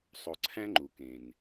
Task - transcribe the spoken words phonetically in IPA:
sˤo˨ǀʰæ̃˦ŋ͡ǃu˩ kẽ˩n

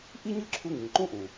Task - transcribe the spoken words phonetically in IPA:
ʔi˥ɲɯ˥ǁʰu˧ŋĩ˩ ǃũ˥ʔũ˩

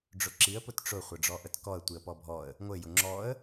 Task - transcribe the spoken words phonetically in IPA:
ɖ͡ʐʊǁiə̯ pʊtʈ͡ʂʊ χʷɘɖ͡ʐɔʔətkɔə̯ tʷiə̯pɔbʱɔə̯ | ŋʷɘ jʊŋ͡ǁɔə̯

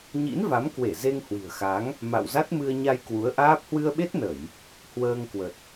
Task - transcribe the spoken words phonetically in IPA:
ɲḭ˧˥nva˨˦mkwe˧˩ ze˧ŋhwi̤˨˩ə̯xa˨˦ŋ | ma̰˧˨wza˦˥t̚mɨ˧ə̯ ɲa˧jkwu˨˦ə̯ ʔaː˦˥p̚ hwɨ˧ə̯ɓe˦˥t̚ nə˧˩˨j | hwəː˧ŋkwə˨˩t̚

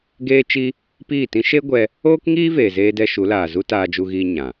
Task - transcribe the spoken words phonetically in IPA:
ɡeː˦t͡ʃi˦ | piː˦˨tĩ˦ ʃe˦ɡʷɛ˧ | oː˦kŋiː˦ veː˨zeː˧dɛ˧ ʃu˨˦laː˨zu˦ taː˧d͡ʒu˧ɣiː˧ ɲã˨

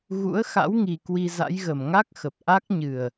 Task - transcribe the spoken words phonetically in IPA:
ɣṵ˧˥ə̯xa̰˧˥w ŋi˧ kwi˧za̰˧˥jɣə˨˩m ŋa˦˥k̚xə˨˩p̚ ʔa˦˥k̚ɲɨ˨˩ə̯

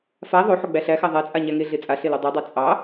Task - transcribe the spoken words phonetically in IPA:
fa ðˤoħo ɡ͡bæɬæxæ ðˤæt͡sʼa ɲæŋeɮe t͡sʼa ɬelodˤodˤa t͡sʼɑ

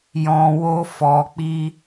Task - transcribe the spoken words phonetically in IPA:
jɔ̃˨wo˧fɔ˨k͡pi˧

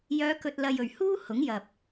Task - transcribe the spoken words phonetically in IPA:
jœː˨˧kɵ˨t̚ lɐ˧jɵ˨˩ɥ huː˥ hʊ˨˥ŋjɐ˨p̚

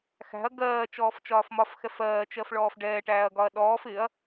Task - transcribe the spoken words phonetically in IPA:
xæ̤ɐ̯ ɡɜː t͡ʃɔːft͡ʃɒːfmɒfxɛf ɜːt͡ʃɜf ɭɔːfɖɛːʈæːɐ̯ ɡɒɐ̯ɗɔːf ɪɐ̯

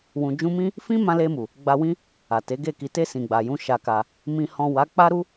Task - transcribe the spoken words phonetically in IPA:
wũ˨d͡ʒũ˧mĩ˦ | fĩ˦ mã˧le˧mu˨ | ɡ͡ba˧wĩ˦ | a˨te˨˦ɡe˦˨ ki˨te˧ sĩ˨ɡ͡ba˨jũ˧ ʃa˧ka˧ | mĩ˨hɔ̃˨ wa˨˦ k͡pa˦ɾu˦

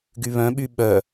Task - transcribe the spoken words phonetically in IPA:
ɡyβœ̃ɓy ɓœ

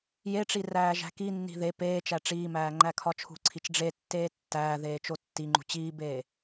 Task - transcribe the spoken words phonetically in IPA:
jeʈ͡ʂi ræːʒæ̤kinːi̤ ðe peː t͡ʃæʈ͡ʂiːmæː ŋ͡ǃækʰɒt͡ʃʰṳǀʰit͡ʃ ɖ͡ʐetːeː tːæːðeː t͡ʃotːiŋ͡ǃṳ t͡ɕiːbeː

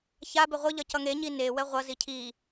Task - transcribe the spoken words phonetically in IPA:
çabe ʁʷɯʎʌ cʌŋeɲi newɛ ʁʷʌzi cʰi

